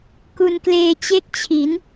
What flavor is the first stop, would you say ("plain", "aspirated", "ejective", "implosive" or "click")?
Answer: plain